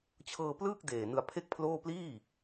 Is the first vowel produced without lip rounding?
yes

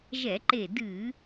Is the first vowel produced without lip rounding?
yes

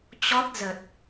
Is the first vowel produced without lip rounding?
no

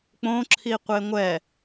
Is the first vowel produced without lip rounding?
no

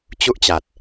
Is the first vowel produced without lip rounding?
no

